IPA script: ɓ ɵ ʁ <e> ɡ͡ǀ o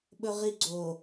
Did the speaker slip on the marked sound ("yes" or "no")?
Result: yes